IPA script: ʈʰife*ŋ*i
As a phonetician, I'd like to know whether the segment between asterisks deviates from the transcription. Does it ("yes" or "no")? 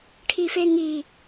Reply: no